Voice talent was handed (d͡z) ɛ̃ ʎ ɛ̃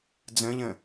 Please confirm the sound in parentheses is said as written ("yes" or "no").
yes